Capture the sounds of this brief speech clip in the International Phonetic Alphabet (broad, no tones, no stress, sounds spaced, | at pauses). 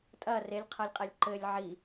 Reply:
tʼ ɐ r e lʲ qʰ ɐ lʲ qʼ ɛ lʲ ǃ ɘ lʲ ʕ i